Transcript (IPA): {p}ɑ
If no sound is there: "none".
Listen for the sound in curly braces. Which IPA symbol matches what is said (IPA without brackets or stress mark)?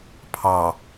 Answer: pʰ